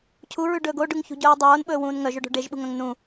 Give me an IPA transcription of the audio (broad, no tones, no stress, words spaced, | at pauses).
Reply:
cʰuɹʉɖɵːɡ oɖʉŋçṳɟɵːw dˤoːnɓɵːwũːn ŋœʒɵɖo̤ ɖeʒɓṳŋœ̃ŋ nũ